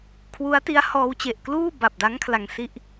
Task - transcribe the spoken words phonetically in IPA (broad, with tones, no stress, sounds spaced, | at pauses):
kʰ w u˦˥ a̯ t i˦˥ a̯ h ɔː˧ w t͡ɕ e˨˩ ʔ k l uː˥˩ b a˨˩ p̚ d a˦˥ ŋ kʰ l a˧ ŋ s i˥˩ ʔ